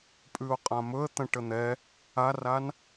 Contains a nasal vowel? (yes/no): yes